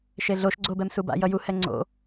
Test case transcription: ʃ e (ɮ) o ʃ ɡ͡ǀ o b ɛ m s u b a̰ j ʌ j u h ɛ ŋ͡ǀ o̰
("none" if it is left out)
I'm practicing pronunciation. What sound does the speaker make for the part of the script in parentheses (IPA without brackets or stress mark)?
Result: ɮ